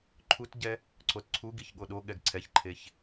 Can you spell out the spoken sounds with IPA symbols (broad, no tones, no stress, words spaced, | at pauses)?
ǃʰutɟɛ | ǀotǀʰuɡiç ɠoɗoɠɛɡ ǀʰɛçǃʰeç